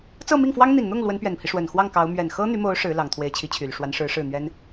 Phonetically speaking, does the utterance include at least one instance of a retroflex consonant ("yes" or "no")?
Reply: yes